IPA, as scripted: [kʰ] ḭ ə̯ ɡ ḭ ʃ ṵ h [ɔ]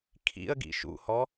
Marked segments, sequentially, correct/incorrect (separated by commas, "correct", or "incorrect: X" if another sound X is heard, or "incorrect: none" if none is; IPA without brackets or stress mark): correct, correct